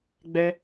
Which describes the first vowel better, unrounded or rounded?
unrounded